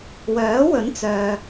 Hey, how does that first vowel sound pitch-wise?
rising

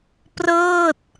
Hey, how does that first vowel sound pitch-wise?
falling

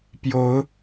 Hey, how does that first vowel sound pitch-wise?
rising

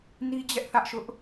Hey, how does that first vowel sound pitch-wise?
high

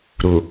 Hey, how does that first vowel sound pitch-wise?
low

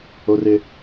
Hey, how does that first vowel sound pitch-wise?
high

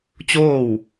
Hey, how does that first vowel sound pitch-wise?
falling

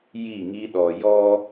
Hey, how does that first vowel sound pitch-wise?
falling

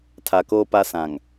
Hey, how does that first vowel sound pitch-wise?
low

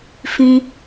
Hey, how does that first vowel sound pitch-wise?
high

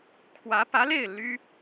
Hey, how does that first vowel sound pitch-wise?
rising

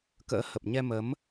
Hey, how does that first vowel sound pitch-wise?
rising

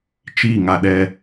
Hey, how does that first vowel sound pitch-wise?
falling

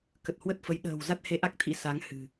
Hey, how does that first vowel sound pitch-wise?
low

